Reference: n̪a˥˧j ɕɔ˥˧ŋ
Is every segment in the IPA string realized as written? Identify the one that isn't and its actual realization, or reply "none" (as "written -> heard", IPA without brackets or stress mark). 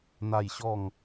none